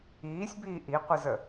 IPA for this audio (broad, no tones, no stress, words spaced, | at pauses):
iːsʲbiː ʔiqʷizə